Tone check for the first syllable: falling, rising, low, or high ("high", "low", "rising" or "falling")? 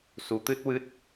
rising